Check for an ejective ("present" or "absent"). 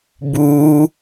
absent